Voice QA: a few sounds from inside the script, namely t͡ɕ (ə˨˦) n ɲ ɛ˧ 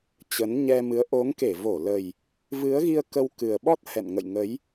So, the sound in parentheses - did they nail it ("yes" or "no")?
yes